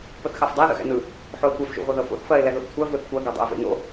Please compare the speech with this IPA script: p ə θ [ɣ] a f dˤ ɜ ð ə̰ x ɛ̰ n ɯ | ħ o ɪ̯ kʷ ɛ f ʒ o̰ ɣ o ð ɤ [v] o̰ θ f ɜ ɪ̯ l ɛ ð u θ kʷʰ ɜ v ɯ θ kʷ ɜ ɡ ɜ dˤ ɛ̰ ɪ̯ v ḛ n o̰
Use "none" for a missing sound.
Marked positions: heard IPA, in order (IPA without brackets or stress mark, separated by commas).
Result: x, f